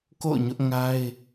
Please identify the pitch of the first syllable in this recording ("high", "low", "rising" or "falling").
falling